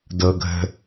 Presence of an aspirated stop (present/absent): absent